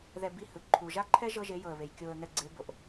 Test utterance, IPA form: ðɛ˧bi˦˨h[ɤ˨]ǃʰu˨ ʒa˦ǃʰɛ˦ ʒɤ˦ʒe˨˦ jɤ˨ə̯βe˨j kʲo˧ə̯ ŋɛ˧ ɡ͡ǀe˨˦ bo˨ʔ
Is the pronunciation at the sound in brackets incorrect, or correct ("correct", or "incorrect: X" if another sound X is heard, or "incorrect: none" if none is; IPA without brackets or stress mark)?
incorrect: ɯ˨